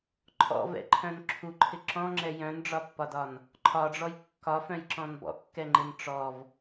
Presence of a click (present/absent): present